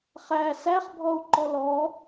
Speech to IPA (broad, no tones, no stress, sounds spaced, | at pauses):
χ æ s æ χ bʱ ɔ u̯ ǃ ɔ l ɔ